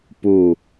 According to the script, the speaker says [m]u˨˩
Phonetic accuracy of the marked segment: incorrect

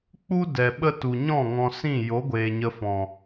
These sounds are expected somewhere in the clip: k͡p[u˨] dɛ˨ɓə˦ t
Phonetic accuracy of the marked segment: incorrect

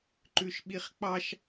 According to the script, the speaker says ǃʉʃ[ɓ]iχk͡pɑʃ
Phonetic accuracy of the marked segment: correct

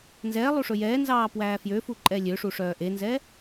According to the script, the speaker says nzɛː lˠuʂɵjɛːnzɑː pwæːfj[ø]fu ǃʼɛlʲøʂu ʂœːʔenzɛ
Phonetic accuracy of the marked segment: correct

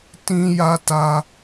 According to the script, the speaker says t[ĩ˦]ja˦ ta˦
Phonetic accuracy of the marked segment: correct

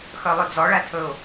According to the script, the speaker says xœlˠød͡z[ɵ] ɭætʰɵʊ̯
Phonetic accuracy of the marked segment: incorrect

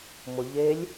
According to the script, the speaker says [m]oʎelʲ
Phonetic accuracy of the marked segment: correct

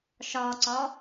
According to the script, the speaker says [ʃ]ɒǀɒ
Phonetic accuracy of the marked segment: correct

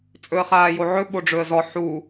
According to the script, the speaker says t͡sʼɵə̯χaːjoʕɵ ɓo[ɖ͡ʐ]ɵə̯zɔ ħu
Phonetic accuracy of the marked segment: correct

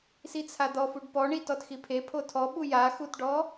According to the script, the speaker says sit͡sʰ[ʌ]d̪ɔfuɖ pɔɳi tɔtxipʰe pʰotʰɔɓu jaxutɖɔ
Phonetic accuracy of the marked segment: incorrect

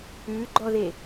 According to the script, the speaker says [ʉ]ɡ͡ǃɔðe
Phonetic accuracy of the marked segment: correct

